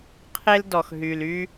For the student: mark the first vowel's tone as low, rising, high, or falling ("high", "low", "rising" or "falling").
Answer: high